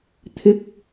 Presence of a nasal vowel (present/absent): absent